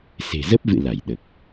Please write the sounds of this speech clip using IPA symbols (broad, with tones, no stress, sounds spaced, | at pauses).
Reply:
s e̤˨˩ z ə˦˥ p̚ v ɨ̰˧˨ l a˧˩ j ɗ ə˨˩ p̚